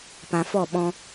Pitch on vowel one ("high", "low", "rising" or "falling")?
low